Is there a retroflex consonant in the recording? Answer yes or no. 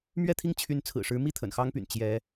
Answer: yes